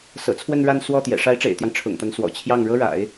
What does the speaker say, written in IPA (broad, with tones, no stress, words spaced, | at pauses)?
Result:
sɤ̰˨˩t͡sʰwə˥˧n ɻa˥˧nswɔ˥˩t̪jɛ̰˨˩ ʂa˧˥ɪ̯ʈ͡ʂḛ˨˩ɪ̯t̪jɑ˦ŋ ʈ͡ʂʰʊ̰˨˩ŋt̪a˦nswɔ̰˨˩t͡ɕʰjɑ˥˩ŋ ɻɤ˥ɻa̰˨˩˦ɪ̯